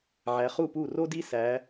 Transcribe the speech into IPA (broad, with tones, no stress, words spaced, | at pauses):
ʕæ˨˦χu˥˩pu˥˩ro˥ di˥sæ˨˦